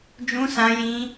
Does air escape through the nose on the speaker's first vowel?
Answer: yes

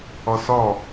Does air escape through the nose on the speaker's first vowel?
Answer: no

